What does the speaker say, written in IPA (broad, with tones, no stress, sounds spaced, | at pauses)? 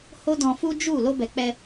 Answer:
h o˦ d ɔ̃˧ f u˦ d͡ʒ u˦˨ l o˧ b ɛ˨ k͡p ɛ˧